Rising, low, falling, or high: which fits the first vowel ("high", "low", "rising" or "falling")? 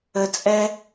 low